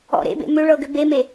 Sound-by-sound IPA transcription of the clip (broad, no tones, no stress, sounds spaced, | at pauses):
ɔ̰ ɾ ḛ b ḛ m ʏ ɭ ɤ ɡ ʏ b e m e